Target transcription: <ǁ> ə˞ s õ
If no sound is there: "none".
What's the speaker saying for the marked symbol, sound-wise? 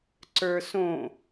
ǀ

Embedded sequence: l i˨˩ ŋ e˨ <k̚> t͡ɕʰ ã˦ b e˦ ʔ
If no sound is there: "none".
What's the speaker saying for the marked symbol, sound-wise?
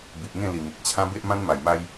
k̚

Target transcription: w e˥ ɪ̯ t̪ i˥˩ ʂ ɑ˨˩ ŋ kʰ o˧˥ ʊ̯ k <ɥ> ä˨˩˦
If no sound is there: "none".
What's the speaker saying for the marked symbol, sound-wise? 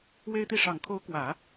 w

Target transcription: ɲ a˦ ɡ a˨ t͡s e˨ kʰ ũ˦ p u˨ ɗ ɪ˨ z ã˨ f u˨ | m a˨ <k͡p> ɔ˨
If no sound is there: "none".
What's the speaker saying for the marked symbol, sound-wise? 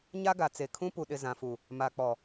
k͡p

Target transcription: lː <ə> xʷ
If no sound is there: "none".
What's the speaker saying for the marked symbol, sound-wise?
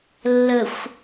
ə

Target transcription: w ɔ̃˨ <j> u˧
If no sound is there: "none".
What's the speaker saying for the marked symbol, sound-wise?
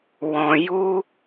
j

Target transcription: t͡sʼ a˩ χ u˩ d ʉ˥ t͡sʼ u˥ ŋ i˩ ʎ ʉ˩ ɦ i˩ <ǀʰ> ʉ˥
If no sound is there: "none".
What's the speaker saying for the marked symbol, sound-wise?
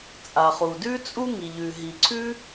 ǀʰ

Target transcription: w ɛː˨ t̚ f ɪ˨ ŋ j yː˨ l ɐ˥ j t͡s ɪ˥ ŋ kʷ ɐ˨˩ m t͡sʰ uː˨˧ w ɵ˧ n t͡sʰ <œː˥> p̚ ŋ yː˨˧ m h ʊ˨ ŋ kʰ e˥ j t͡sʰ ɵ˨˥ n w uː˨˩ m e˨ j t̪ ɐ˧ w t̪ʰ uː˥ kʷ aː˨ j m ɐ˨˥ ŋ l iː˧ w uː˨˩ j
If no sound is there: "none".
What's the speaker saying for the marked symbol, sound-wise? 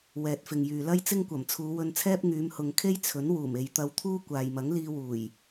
ɛː˥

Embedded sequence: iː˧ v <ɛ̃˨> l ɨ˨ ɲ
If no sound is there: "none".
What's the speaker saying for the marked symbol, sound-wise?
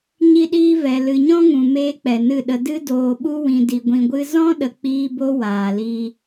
ɛ˨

